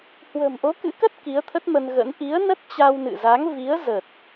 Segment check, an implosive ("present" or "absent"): absent